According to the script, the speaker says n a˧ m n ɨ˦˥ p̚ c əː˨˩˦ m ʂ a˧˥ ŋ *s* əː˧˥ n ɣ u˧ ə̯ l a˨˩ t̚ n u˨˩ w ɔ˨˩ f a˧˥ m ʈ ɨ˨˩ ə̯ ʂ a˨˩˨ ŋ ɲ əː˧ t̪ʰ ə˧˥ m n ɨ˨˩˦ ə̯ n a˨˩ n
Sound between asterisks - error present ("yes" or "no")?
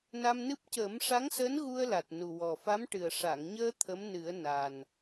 no